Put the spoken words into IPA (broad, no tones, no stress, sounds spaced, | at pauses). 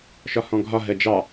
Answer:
ʃ ɒ h ɔ̃ ɡʱ ɒ ɦ ɜ d͡ʒ ɑ